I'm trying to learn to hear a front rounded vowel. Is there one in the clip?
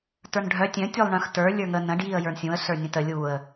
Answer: yes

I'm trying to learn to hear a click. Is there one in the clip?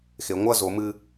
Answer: no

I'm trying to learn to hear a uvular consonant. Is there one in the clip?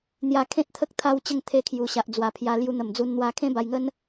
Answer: no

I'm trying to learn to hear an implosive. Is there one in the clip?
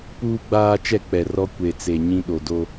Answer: yes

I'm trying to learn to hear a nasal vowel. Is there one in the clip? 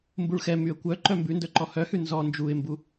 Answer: no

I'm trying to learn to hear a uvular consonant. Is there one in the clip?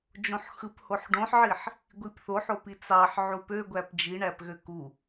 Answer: no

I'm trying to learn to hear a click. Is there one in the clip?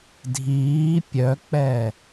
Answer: no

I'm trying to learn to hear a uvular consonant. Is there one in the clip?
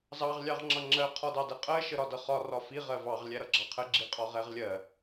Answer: yes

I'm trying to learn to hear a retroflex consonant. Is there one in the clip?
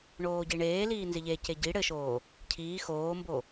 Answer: yes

